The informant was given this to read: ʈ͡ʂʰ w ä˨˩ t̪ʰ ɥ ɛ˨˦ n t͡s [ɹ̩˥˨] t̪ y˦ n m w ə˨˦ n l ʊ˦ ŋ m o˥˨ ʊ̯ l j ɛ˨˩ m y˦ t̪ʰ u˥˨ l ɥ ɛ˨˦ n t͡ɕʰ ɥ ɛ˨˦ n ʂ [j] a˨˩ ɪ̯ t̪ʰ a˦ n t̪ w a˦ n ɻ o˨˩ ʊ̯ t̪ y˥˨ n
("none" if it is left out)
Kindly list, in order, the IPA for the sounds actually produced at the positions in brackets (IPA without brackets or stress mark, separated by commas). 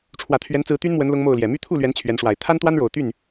ɹ̩˨˦, w